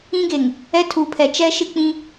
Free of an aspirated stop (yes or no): no